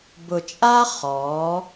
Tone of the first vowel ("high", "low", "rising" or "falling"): low